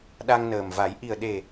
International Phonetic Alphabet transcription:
ɗa˧ŋnəː˨˩mva˨˩˦j ʔi˨˩ə̯ɗe˨˩

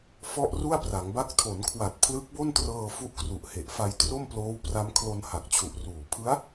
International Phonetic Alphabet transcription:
fɔ˥˩ʔru˥˩a̯pra˩˦ŋba˦˥k̚ tʰo˩˦nkʰwa˨˩t̚ pʰlɯ˦˥k̚bo˥˩ntrɤː˧ fu˦˥ʔkru˨˩ʔ he˨˩ʔfa˧j tro˥˩mploː˦˥wpra˦˥m kʰlo˧n ha˨˩k̚t͡ɕʰu˨˩ʔruː˨˩ pʰɯ˦˥a̯

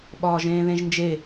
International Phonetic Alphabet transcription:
ɓɒːʒẽːðẽʒnd͡ʒe

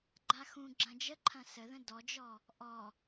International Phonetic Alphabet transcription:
ɡ͡ǃaxũ ɡ͡ǁɐ̃d͡ʒəǃʰɐ̃ səðə̃ dɔd͡ʒɔ | ʔɔ

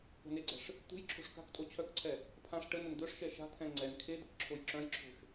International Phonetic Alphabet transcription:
ko̤neɡ͡ǀɛ̤ʂ | t̪ṳjǁʰo̤ʂ ka̤ktʼo t͡ɕʰœkǀʰɛ | pʰãʂ ʈənən d̪œʂʃɛ ʃa̤t̪ʰɛ̃ ŋ͡ǀɛn kʰed̪ək ǁʰojǁœ̃jǁʰo̤ʃ

